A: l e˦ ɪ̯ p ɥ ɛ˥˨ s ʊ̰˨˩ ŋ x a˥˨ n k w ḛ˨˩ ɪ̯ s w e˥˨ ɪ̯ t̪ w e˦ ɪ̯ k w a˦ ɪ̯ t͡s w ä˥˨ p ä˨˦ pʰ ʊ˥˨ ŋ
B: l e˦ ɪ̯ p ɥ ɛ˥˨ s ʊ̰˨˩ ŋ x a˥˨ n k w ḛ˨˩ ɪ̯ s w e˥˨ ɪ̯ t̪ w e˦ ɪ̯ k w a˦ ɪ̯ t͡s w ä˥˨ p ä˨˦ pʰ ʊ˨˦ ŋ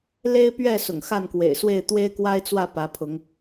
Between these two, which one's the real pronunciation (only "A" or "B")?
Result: B